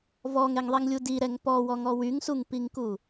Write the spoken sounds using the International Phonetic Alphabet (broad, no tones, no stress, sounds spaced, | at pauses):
v ɔ ŋ ɛ ŋ ðˤ ɛ ŋ lʲ u d i ɾ ɛ ŋ p ɔ w ɔ ŋ ɔ w y ŋ s u ŋ p i ŋ k u